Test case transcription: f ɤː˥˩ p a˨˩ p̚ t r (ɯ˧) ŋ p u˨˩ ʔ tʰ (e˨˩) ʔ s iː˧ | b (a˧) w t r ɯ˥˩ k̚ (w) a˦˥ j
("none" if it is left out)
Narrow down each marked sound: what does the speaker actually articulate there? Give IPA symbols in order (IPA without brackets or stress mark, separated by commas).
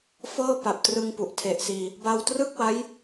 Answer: ɯ˧, e˨˩, a˧, w